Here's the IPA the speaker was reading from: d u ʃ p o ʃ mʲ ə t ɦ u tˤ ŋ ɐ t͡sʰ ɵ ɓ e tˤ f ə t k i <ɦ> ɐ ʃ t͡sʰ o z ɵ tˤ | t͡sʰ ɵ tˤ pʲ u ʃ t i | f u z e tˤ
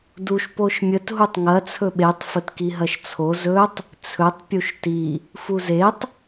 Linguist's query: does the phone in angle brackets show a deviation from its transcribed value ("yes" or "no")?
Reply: no